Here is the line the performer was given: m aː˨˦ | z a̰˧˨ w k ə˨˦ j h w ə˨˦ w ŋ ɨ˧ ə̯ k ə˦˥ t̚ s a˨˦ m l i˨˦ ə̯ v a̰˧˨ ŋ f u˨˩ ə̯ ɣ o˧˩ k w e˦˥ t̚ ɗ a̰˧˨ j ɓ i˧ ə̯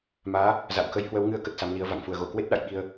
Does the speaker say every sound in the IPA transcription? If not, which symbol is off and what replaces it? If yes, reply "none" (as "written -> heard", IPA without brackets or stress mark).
none